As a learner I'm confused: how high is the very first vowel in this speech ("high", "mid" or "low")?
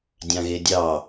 low